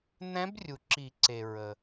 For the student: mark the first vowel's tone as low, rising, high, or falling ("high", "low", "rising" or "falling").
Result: rising